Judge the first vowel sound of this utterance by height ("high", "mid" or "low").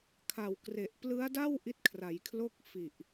low